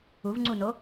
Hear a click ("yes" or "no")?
yes